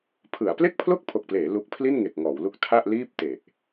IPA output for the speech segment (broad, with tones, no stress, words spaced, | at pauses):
pʰɯ˩˦a̯ ple˥˩k̚pʰlo˥˩k̚pʰo˨˩k̚pleː˩˦ lu˦˥k̚ pʰli˥˩nŋe˨˩k̚ŋɔː˩˦wlu˦˥k̚ tʰa˥˩ʔliː˥˩p̚ te˨˩ʔ